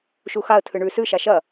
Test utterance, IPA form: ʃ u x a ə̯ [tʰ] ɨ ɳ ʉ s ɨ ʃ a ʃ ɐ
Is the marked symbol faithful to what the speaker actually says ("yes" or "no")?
yes